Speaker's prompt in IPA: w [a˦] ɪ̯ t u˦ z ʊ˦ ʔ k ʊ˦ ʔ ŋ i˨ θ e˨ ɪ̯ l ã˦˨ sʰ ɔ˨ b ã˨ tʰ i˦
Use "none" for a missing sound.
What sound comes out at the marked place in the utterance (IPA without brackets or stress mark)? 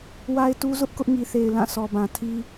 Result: a˦